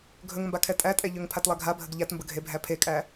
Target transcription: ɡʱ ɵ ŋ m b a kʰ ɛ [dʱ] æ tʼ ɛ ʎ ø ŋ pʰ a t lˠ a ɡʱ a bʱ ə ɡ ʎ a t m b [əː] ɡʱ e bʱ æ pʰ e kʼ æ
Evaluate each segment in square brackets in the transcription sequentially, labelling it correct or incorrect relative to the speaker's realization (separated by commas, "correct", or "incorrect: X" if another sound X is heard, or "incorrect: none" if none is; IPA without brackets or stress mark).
incorrect: tʼ, incorrect: ə